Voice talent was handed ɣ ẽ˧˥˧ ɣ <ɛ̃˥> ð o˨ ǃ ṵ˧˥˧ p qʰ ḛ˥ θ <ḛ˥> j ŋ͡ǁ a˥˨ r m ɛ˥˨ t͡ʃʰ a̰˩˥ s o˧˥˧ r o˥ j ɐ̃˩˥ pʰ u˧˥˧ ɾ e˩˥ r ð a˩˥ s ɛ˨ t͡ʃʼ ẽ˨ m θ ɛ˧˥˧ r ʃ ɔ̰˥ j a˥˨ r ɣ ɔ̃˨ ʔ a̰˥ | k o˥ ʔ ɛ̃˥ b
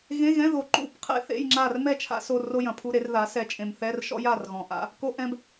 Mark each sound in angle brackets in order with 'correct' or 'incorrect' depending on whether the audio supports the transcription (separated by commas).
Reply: incorrect, incorrect